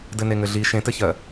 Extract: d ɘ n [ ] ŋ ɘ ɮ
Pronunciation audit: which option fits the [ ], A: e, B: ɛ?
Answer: A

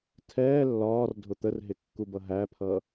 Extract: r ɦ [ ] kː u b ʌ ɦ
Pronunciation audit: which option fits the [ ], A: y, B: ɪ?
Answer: B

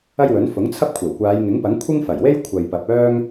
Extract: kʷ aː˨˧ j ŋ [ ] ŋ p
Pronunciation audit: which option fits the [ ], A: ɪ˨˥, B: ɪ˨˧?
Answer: A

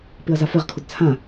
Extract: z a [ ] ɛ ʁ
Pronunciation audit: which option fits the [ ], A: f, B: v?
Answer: A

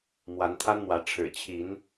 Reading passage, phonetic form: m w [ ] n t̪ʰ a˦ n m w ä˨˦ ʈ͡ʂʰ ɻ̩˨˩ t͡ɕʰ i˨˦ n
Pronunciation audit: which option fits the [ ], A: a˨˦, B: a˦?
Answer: A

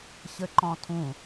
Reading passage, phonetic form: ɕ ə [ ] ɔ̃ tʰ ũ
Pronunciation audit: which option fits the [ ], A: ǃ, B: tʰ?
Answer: A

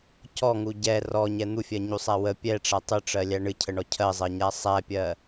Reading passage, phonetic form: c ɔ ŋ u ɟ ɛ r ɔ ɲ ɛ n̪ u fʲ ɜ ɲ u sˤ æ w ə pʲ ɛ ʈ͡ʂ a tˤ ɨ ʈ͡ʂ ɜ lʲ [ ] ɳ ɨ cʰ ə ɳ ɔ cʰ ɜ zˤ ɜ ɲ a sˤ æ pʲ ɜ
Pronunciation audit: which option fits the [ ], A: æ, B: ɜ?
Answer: A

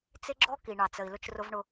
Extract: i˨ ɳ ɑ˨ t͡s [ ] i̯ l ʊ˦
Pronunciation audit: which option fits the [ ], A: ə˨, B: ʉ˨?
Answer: A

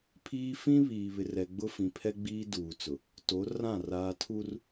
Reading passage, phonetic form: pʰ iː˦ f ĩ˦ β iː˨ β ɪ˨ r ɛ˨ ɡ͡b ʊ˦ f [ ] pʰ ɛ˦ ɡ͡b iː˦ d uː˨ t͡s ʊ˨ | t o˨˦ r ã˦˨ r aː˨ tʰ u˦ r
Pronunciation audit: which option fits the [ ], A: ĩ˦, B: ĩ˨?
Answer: B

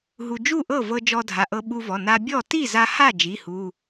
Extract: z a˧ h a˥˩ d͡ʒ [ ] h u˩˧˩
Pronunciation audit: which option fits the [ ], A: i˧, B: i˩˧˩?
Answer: B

